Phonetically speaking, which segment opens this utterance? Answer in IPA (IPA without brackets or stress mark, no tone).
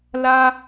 l